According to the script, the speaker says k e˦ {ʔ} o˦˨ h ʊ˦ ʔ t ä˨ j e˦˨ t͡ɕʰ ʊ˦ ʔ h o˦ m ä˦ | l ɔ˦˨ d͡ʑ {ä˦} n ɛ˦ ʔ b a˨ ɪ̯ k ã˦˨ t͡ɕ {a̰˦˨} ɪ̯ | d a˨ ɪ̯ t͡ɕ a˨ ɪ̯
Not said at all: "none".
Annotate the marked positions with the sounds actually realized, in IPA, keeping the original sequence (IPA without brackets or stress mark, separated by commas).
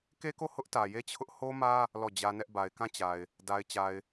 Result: k, ä˦, a˨